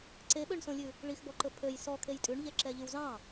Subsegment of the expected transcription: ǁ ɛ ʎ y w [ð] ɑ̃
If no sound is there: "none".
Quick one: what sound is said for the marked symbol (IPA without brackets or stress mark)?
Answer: z